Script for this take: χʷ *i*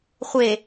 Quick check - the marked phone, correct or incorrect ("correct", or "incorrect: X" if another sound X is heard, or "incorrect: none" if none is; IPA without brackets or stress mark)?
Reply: incorrect: e